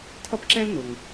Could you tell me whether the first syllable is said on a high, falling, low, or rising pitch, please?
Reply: high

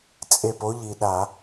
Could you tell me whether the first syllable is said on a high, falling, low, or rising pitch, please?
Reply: falling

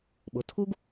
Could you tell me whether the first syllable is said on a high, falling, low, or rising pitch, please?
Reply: low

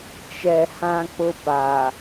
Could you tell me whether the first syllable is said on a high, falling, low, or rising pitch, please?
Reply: low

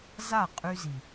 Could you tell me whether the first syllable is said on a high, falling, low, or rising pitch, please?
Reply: falling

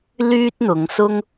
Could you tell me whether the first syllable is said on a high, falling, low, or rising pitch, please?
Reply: high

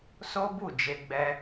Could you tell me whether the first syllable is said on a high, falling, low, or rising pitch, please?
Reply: high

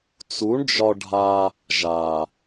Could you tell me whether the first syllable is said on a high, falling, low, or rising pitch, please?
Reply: rising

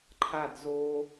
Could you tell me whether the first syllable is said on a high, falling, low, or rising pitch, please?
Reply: falling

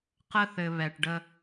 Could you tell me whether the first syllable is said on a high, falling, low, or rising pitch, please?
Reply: high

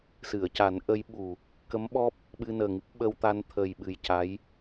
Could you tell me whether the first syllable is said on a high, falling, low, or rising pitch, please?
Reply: low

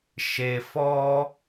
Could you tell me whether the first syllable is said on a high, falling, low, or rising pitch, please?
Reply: low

